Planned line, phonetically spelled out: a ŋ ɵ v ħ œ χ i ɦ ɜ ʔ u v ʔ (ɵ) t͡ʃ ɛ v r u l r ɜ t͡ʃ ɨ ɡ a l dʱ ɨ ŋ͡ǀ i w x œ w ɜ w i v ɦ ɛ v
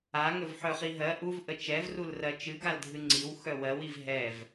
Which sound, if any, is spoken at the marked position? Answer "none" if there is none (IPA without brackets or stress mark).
ə